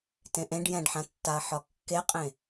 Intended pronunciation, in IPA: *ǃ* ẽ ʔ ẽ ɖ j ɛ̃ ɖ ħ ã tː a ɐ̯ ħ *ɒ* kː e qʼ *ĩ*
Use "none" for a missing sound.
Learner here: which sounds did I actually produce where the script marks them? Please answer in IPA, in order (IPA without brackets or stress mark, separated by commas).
t, ɒ, ẽ